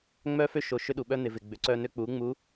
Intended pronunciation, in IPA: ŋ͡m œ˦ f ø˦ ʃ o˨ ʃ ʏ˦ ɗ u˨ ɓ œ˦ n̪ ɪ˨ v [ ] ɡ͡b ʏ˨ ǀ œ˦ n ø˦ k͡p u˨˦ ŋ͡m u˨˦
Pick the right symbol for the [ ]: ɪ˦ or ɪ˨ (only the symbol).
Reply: ɪ˨